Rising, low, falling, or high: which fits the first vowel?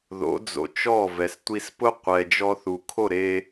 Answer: rising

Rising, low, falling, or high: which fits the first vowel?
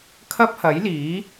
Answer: high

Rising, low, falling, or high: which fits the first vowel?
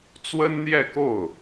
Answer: high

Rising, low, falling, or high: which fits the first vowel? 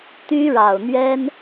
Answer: high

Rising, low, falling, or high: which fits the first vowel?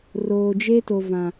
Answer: low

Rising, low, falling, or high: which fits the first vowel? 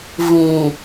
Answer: low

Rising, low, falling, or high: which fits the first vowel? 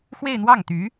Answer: falling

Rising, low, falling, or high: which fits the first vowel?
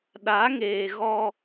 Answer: rising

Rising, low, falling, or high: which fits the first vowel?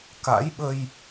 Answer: rising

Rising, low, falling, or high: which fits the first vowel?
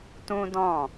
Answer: high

